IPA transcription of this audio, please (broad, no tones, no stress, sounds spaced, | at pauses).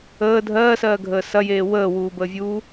əː dʱ ɜː s ɜː ɡʱ əː s ɐ j eː w əː w uː b əː vʲ uː